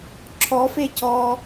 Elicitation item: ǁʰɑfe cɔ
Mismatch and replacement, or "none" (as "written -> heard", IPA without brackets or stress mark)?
ɑ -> ɔ